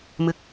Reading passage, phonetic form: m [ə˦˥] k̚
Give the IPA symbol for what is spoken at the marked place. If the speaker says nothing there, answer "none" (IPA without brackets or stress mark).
ɨ˦˥